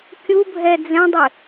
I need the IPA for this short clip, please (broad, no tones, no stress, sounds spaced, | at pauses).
kʲ u bʱ ɛ d͡z ɛ̃ dˤ ɪ